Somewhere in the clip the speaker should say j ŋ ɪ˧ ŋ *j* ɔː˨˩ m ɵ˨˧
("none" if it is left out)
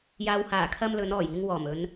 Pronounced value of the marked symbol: w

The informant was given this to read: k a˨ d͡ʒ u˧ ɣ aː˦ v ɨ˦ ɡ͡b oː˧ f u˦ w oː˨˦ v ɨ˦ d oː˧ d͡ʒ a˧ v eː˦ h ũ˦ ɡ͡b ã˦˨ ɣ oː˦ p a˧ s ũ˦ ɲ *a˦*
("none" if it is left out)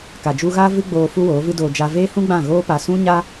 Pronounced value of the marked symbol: a˦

